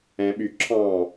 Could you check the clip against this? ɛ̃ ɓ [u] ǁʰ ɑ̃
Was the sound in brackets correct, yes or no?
no